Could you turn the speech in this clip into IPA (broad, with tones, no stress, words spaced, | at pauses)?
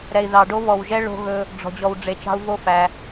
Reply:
ɾɛ˨i̯ðɑ˨ ɖo˦βɔ˨wʒɛ˦ ɭo̤˦ɣɵ˦ | ɖ͡ʐɔ̤˨d͡ʑɔ˨wɖ͡ʐe˨t͡ʃɑ̤˦u̯ vo˦fæ˨